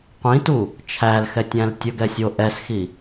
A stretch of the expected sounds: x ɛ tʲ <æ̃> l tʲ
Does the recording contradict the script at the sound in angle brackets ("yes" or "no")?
no